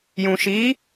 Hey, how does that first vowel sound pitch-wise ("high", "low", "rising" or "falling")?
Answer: low